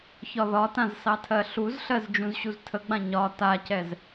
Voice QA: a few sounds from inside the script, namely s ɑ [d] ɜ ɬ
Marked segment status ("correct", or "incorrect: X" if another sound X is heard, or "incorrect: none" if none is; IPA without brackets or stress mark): incorrect: tʰ